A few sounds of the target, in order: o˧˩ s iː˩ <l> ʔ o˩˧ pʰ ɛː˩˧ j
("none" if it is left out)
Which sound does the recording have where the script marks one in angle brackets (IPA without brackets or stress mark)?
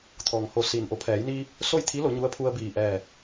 n